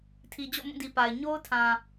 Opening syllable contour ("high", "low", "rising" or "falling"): low